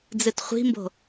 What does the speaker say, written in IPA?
d͡z ɨ t χʷ i̤ m b o̤

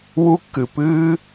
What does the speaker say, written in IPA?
w u˥ kː ɨ˩ p ɨː˥

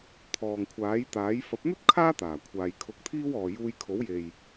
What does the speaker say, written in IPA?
t̪ʰ ɔː˨ ŋ kʷʰ aː˨˥ j t̪ aː˨˥ j f ɐ˨˥ p̚ n̪ ɵ˥ t̚ kʰ aː˥ t̪ aː˨˩ kʷʰ aː˨ j kʰ ʊ˧ k̚ t̪ʰ iː˥ w ɔː˨ j uː˧ j kʰ o˨˥ w j e˨ j

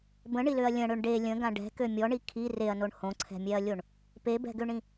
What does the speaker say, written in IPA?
b ə̃ ɳ i l ø ɐ̯ lʲ ə̃ ɽ ø ɳ ɖ e lʲ ə̃ ɡ ã ɖ ɛ̤ k ø mʲ ɔ ɳ i kʰ i r e ɐ̯ n o ɳ h õ ǀʰ ɛ̤ mʲ ɛ ɐ̯ lʲ o ɳ | p e b ɛ̤ ɡ ø ɳ ĩ

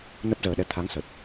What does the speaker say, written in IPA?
n ə˦˥ p̚ z əː˨˩ ɗ ɛ˧ t̪ʰ a˨˦ ŋ s ə˨˩ t̚

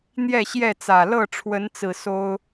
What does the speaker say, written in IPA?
n̪ j ɛ˥˨ ɕ j ɛ˥˨ t͡s ä˨˩ l ɤ˥˨ ʈ͡ʂʰ w ə˨˦ n t͡s ɹ̩˨˩ s o˦ ʊ̯

